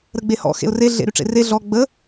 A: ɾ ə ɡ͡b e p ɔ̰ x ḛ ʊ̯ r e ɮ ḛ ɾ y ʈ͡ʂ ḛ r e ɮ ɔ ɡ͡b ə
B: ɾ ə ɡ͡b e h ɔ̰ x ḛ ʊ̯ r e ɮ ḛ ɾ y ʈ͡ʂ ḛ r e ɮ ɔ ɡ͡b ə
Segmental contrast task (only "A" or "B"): B